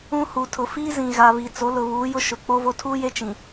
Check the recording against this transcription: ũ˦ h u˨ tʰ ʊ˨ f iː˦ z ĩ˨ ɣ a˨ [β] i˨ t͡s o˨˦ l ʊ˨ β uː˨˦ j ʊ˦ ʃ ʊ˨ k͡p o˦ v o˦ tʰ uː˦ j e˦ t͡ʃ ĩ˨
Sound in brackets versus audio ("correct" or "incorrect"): correct